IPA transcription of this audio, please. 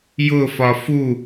jʊfɒ fu

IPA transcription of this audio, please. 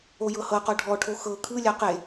ojɤhɤqɔ ɖʱɔʈʰo xɤ kʰɯlʲa qe

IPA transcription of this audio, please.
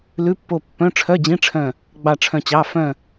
lʉ˧˥˧pːo˦˨ pːœ̃˧˥˧ ʈ͡ʂʰœ˧˥˧d͡ʑĩ˧˥˧ʈ͡ʂʰœ̃˦˨ | ɡ͡bɑ˦˨ʈ͡ʂʰœ̃˦˨t͡ɕɑ˧˥˧ fœ̃˦˨

